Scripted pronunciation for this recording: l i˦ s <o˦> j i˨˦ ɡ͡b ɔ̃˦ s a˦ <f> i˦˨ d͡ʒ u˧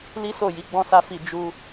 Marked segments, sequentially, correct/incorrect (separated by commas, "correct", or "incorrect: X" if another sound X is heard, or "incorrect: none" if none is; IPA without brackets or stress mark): incorrect: o˦˨, correct